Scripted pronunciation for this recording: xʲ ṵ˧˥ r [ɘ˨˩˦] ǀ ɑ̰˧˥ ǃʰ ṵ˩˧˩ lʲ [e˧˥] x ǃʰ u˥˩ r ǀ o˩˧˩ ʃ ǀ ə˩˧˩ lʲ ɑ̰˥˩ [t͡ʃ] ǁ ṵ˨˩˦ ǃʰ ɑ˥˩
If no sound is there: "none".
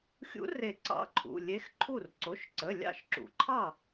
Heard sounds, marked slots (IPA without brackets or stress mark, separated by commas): e˨˩˦, e˧˥, ʃ